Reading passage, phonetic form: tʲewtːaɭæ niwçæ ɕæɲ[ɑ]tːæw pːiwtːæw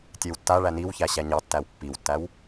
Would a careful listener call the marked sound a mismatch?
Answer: no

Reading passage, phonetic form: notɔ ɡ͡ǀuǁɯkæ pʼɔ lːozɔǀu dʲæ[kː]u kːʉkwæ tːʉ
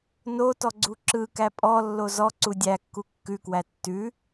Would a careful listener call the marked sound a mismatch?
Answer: no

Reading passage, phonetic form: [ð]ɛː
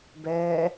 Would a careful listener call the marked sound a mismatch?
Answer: yes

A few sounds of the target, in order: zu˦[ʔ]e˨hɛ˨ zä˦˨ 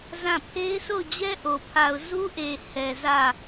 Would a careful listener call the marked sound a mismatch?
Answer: no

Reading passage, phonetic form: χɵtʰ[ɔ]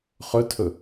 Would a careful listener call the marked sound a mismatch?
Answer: yes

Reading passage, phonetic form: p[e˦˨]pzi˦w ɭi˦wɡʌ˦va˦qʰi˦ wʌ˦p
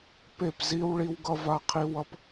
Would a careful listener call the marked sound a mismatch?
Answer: no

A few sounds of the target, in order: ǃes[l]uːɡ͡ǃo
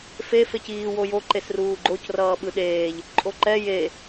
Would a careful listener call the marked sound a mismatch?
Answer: yes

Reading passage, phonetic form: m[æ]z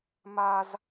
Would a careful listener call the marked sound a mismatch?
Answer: yes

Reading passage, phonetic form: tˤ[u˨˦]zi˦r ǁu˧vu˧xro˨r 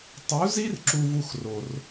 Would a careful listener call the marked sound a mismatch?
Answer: no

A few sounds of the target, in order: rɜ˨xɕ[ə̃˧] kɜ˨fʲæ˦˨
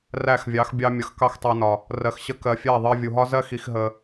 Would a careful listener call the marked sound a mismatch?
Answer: yes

